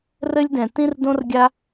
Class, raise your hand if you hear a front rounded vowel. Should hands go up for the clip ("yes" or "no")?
no